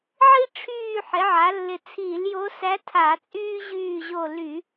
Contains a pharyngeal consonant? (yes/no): yes